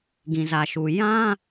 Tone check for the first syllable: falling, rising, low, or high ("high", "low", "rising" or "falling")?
low